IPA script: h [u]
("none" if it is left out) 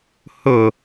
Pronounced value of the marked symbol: ʊ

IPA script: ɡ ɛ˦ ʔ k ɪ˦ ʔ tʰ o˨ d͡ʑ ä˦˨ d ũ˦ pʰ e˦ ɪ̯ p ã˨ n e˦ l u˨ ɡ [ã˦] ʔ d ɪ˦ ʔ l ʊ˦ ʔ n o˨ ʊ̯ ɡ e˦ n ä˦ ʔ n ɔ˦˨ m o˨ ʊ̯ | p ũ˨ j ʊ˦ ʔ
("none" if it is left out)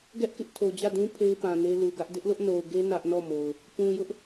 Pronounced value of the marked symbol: ä˦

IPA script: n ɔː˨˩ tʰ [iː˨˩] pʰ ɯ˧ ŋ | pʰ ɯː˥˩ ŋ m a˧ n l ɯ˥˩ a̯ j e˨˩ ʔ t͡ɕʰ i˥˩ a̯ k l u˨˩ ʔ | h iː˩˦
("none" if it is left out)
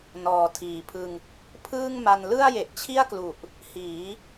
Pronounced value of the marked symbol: iː˨˩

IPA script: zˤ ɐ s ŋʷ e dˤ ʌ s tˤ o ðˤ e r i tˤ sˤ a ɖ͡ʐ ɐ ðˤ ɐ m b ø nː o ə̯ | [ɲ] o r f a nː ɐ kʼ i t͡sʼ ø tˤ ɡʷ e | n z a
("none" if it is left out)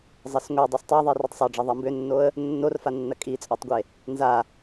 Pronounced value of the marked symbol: nː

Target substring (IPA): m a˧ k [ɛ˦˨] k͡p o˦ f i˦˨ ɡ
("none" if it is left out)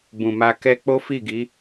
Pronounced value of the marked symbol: ɛ˦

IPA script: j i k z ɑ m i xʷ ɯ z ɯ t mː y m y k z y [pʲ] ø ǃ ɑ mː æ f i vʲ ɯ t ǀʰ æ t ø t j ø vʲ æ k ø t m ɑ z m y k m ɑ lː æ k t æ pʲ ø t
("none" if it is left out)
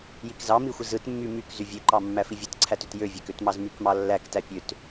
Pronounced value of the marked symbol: vʲ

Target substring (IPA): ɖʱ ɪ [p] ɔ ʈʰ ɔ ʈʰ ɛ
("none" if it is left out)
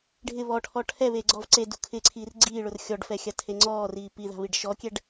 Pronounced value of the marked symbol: β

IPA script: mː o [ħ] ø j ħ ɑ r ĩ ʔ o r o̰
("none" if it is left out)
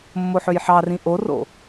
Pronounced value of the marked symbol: ħ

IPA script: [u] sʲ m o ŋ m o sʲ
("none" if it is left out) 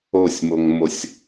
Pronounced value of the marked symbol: o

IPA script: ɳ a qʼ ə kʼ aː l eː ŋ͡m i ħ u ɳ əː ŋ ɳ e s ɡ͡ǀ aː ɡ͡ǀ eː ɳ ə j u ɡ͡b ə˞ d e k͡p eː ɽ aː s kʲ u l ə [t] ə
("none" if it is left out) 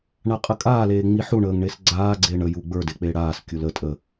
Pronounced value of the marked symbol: tʼ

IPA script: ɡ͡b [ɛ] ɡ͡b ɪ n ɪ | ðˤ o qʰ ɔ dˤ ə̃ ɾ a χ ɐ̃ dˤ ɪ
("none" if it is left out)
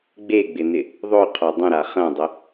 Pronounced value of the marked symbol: e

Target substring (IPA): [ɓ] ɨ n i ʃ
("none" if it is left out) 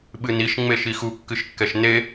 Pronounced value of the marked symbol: ɓ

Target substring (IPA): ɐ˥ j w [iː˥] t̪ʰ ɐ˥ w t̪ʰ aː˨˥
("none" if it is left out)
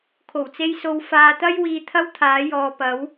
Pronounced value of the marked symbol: iː˧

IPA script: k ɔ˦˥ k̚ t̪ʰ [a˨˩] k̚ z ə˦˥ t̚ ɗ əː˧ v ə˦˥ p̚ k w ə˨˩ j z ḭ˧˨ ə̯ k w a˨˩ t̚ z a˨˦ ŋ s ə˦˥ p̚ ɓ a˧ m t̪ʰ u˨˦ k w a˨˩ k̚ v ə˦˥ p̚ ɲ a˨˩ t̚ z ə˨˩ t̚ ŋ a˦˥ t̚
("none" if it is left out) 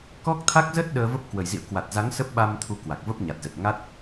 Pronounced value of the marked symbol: a˦˥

